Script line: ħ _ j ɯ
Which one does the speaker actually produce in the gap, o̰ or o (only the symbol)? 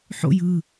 o̰